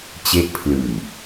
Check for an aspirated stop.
present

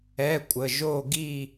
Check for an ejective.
present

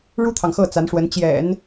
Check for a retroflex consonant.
present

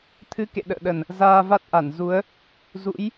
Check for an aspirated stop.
present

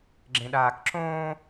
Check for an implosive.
present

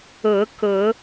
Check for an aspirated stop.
absent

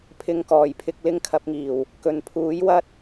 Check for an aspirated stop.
present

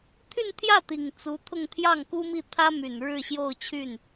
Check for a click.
absent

